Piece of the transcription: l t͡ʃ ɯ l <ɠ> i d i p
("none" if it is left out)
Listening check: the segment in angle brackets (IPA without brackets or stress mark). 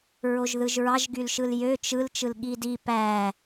ɠ